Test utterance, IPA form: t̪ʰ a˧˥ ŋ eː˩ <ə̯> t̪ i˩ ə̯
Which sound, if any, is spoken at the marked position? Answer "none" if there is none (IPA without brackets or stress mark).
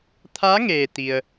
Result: none